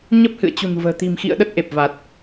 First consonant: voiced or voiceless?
voiced